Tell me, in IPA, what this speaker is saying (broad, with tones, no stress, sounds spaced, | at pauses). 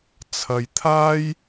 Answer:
t͡sʰ ɐ˧ j t̪ʰ aː˥ j